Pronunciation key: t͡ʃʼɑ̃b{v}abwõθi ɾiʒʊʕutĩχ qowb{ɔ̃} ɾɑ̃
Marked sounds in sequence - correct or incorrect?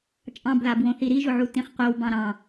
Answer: incorrect, incorrect

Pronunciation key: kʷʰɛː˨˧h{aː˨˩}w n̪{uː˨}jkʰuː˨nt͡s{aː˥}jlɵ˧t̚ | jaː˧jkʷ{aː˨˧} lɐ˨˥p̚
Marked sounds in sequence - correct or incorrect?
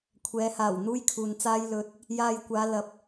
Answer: correct, incorrect, correct, correct

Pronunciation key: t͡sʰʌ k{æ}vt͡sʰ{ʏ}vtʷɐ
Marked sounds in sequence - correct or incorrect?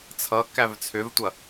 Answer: correct, correct

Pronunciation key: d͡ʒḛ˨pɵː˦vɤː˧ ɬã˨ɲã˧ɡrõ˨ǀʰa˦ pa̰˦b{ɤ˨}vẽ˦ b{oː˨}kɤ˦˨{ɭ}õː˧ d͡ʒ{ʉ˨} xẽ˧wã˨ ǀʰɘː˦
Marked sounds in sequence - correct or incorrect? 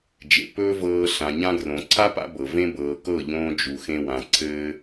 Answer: correct, incorrect, incorrect, incorrect

